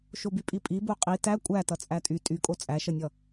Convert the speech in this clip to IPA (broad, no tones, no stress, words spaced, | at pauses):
ʃobypʼipʼi boqʼi tæ kʷʼæ tʌt͡sʼætʼy tʼykʼo t͡sʼæʃʌnʲʌ